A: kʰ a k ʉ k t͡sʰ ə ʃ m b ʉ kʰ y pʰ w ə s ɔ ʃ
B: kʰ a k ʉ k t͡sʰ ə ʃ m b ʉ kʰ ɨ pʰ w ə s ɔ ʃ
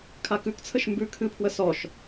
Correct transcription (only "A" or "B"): B